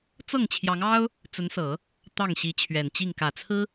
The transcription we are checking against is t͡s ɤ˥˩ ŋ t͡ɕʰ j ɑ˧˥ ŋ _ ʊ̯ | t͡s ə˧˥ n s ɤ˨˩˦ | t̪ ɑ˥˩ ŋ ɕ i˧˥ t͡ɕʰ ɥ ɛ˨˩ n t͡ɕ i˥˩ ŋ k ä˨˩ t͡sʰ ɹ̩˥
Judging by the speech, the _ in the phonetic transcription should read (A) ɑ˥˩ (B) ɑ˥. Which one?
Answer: B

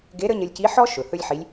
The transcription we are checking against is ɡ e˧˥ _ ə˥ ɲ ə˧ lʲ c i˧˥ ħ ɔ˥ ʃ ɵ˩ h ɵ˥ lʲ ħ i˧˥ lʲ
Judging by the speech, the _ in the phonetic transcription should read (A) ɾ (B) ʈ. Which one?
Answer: A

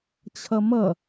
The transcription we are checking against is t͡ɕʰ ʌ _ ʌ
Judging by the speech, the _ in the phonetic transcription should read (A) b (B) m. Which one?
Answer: B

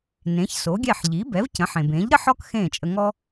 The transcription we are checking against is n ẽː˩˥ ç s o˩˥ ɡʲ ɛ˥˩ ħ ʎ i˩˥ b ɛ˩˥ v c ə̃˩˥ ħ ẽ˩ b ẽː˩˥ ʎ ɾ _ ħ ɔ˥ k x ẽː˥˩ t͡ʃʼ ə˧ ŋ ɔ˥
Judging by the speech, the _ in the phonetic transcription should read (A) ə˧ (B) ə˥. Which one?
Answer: B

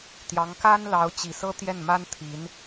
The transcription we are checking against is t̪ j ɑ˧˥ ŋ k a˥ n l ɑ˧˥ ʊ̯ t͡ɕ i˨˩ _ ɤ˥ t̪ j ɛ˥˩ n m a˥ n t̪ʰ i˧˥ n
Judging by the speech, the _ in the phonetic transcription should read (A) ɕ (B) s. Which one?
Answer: B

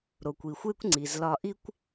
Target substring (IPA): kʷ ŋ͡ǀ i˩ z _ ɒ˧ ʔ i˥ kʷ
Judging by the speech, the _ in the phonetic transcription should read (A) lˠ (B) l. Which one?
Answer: B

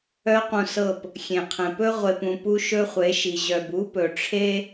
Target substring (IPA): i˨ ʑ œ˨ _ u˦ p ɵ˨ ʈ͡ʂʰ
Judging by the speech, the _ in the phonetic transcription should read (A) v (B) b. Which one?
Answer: B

